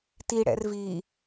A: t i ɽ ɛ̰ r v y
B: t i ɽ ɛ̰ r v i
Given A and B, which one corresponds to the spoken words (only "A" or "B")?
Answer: B